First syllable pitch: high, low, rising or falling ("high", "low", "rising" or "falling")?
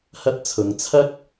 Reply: high